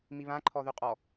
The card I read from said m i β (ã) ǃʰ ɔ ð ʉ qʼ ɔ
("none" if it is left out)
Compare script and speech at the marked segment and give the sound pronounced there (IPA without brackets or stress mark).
ã